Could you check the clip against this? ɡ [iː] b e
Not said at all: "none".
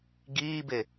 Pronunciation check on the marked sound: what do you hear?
iː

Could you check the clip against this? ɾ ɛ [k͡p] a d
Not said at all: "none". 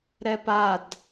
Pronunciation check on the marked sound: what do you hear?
p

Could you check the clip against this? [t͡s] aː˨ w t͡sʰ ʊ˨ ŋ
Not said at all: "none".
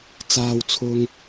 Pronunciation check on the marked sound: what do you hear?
t͡s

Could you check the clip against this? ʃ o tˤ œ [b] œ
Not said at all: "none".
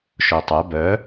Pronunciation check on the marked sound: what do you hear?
b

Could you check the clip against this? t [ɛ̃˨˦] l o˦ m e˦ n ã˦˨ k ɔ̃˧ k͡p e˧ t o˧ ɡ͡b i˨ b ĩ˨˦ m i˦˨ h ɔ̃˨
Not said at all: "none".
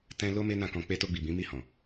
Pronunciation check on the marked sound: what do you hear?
ɛ̃˦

